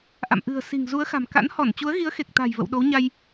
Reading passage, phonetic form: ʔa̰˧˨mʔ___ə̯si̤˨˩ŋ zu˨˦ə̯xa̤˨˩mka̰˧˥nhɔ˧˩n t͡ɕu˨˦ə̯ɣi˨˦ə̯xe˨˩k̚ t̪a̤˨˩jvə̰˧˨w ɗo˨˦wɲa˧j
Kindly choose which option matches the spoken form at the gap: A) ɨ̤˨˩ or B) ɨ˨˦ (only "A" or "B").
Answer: A